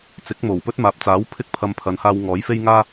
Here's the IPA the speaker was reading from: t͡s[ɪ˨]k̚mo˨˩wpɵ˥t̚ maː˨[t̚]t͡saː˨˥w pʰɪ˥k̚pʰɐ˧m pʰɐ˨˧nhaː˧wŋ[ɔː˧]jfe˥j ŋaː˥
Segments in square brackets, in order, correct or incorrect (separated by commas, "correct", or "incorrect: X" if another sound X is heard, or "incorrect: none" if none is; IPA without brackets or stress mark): incorrect: ɪ˨˥, incorrect: p̚, incorrect: ɔː˨˥